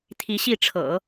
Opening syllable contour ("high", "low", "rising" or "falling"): rising